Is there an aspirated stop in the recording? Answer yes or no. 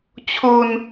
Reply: yes